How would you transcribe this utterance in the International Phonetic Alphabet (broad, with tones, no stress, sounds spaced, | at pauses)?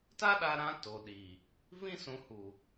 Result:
t a˦ ɗ a˧ ɾ ã˧ t o˨ ɗ i˨ | v ĩ˦ s ũ˨˦ h u˨